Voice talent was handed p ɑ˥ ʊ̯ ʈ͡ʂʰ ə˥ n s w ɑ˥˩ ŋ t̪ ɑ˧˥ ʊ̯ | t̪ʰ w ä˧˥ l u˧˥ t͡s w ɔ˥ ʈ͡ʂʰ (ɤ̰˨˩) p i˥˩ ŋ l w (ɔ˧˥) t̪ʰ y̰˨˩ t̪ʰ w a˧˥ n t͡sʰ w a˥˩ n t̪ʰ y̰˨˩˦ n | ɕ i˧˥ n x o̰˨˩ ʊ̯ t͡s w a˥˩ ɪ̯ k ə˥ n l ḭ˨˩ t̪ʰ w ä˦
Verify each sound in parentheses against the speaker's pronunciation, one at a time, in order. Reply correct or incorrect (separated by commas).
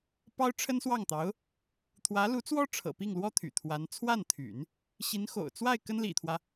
correct, incorrect